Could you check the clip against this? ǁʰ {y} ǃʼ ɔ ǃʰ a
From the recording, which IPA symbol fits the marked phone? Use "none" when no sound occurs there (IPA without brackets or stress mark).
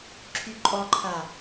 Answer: y